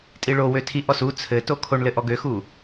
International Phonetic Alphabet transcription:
tʼ i ɭ o w ø tʰ i ʔ ɔ s u t͡sʰ ɘ t o kʰ o ɳ l ɘ ʔ ɔ ɡ ø x u

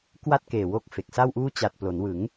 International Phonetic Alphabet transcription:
k w a˥˩ t̚ k eː˨˩ w o˦˥ k̚ f e˨˩ k̚ s a˥˩ w ʔ uː˥˩ t͡ɕ a˨˩ t̚ p l o˩˦ n w ɯ˩˦ ŋ

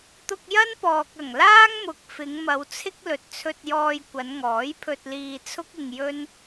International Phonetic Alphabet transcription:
t̪ ʊ˧ k̚ j ɐ˥ n p ɔː˨ k̚ ɐ˨˩ ŋ l aː˥ ŋ m ʊ˨ k̚ f ɪ˨˧ ŋ m ɐ˨˧ w t͡sʰ ɪ˥ k̚ l ɵ˨ t̚ t͡sʰ ɵ˧ t̚ j ɔː˧ j kʷ ɐ˨˧ n ŋ ɔː˨˥ j pʰ ɵ˧ t̚ l iː˧ t͡sʰ ʊ˥ k̚ ɪ˧ ŋ j ɵ˥ n

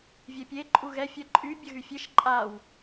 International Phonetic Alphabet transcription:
vʲ ɛ pʲ e ǃʼ u ɣ ɛ fʲ ɜ ǃʼ y bʲ ə ɣ y fʲ e ʃ ǃʼ a w

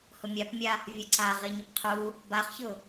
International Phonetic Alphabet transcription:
h ʊ mʲ a p mʲ a | vʲ ə ǀ a ʁ i ɲ ə p qʰ u | b a χ ç ʊ

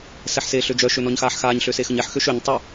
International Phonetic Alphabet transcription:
s ɛ ħ s eː ɬ ø d͡ʒ œ ʃ ø n ɔ ɲ x aː ħ x aː ɲ ɬ ø s e x ə ɲ ɛ ħ x ø ʃ ø ɲ tˤ œ

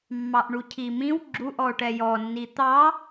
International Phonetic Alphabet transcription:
mː ɑ ʔ ɳ u cʰ i m ĩ w ɡ͡ǁ u ʔ ɔ o̯ ʈ ɛ j ɔ nː i t̪ ɑ

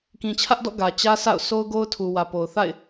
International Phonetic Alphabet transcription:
k ĩ˨ t͡ɕʰ ä˦ ʔ d ɔ̰˦˨ ɡ ä˨ t͡ɕ ä˦ s a̰˦˨ ʊ̯ s o˦ ʊ̯ ɡ o˦ ʊ̯ tʰ u˨ w ä˨ p o˨ ʊ̯ θ a̰˦˨ ɪ̯

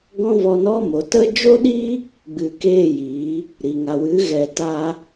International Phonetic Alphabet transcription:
ɡ ɔ̃˦ v ɔ˧ n ɔ˦ m o˨˦ t ə˦ d͡ʒ o˦ ɗ i˦ | ɡ͡b ɨ˨ k eː˦˨ j i˨˦ | ɾ i˨ ŋ a˨ w ɨ˨˦ ɣ ɛ˨ t a˧

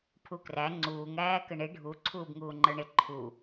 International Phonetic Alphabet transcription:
pʰ u k r æ ŋ͡ǀ uː ŋ æː k ə ɳ ɪ ɖʱ u ǀʰ uː b ŋ uː ŋ͡ǃ ə˞ ɳ ɪ ǃʰ u

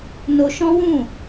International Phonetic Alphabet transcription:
n o˧ ʃ ɔ̃˦ w ũ˦˨

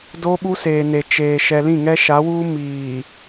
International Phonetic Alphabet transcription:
d o˦ ɓ u˦ s eː˨ n e˨ t͡ʃ eː˨ ʃ ɛ˨ l ĩ˦˨ ŋ ɛ˦ ʃ a˨˦ w uː˦ m iː˨

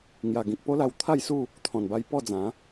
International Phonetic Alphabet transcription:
ŋ j a˨˩ ɡ ĩ˨ k̚ p o˦ l a˧ w t̪ʰ a˥˧ j s u˥˧ | t̪ʰ ɔ̃˨˩ n b a˧ j p ɔ˥˧ d͡z ã˨˦

